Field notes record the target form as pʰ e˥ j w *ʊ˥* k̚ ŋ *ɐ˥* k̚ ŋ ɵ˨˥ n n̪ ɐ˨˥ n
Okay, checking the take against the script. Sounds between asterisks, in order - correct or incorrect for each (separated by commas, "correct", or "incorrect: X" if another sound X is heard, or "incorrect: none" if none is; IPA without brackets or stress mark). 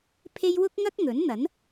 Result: correct, correct